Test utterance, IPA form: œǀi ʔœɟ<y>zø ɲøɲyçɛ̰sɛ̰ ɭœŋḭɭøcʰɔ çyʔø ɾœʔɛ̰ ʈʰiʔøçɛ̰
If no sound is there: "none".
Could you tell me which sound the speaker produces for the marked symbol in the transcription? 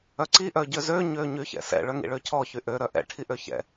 ø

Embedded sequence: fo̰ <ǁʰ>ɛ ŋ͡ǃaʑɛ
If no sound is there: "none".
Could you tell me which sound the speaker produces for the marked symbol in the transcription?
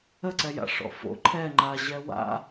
ǃʰ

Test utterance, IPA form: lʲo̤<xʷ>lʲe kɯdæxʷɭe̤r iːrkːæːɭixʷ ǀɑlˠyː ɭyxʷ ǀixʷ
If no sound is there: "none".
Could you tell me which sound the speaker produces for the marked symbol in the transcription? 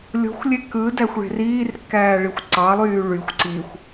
xʷ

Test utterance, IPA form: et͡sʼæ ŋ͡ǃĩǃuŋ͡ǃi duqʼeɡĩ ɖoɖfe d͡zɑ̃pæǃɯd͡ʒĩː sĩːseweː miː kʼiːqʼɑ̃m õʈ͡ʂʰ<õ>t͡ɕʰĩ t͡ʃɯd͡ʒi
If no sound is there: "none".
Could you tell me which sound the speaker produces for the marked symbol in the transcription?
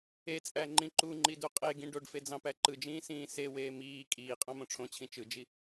õ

